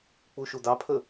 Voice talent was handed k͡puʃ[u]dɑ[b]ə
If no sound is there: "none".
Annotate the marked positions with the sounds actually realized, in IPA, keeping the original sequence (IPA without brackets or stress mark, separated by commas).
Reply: u, pʰ